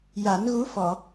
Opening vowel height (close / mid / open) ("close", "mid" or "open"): open